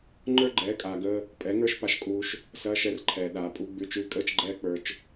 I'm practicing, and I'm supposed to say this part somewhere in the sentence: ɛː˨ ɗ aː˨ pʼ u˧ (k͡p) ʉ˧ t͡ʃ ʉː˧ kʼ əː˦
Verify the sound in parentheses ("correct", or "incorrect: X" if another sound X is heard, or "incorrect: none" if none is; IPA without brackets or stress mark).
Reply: incorrect: ɡ͡b